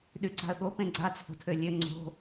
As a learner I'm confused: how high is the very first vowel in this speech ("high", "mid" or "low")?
high